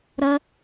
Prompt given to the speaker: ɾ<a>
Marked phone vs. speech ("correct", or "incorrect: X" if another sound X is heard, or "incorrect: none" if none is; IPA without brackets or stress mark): incorrect: ʌ